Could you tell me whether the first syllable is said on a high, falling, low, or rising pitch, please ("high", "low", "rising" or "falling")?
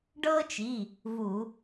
high